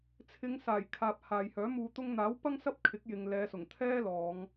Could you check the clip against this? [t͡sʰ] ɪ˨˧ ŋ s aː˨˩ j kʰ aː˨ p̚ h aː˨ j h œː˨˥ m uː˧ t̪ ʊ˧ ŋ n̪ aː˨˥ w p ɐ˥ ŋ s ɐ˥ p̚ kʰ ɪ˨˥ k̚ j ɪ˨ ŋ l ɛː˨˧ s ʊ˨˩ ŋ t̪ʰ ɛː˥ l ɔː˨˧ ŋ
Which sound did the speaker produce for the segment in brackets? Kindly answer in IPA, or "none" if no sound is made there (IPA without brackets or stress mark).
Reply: t͡sʰ